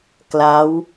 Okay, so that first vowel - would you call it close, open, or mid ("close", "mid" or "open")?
open